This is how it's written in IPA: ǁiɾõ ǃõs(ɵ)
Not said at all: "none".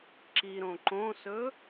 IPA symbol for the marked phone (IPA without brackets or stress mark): ɵ